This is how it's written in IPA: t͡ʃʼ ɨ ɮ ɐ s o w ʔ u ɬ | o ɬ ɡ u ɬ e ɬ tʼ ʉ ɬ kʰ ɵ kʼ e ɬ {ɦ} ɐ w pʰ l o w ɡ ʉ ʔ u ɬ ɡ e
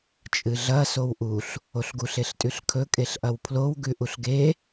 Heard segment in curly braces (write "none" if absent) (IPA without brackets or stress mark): ʔ